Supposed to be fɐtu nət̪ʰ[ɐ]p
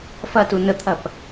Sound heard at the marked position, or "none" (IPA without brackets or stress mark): ɐ